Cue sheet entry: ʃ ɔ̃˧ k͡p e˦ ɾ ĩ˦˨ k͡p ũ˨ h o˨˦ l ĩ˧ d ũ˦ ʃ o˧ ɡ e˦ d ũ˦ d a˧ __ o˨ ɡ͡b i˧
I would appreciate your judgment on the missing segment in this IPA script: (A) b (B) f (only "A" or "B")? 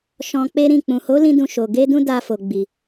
B